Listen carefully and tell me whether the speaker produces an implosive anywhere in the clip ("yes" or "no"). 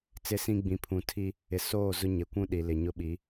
yes